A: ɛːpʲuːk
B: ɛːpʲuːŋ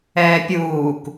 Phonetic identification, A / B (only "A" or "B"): A